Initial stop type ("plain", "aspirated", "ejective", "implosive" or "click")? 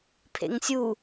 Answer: aspirated